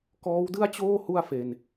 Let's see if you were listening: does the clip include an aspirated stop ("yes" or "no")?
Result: no